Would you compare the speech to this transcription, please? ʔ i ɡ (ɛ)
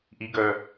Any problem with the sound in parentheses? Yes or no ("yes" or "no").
yes